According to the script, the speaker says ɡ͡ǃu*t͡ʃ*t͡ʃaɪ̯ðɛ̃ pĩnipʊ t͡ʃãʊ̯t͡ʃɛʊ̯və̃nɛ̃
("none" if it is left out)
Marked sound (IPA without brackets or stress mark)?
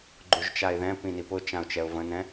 ʒ